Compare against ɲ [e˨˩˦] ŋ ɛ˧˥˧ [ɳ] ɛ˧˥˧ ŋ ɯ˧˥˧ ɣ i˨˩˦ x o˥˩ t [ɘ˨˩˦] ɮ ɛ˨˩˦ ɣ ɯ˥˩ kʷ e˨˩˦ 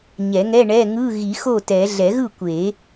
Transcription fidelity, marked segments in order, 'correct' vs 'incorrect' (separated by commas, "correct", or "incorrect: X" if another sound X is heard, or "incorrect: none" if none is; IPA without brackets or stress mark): incorrect: ɛ˨˩˦, correct, incorrect: ɛ˨˩˦